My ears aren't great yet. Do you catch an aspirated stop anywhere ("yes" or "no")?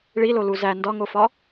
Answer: no